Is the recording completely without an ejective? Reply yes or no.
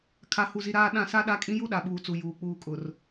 no